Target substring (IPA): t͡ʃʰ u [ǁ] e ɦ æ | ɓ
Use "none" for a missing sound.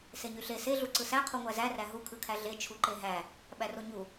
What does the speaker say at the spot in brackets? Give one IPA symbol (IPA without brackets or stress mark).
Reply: ǃ